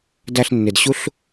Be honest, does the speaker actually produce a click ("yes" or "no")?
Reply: no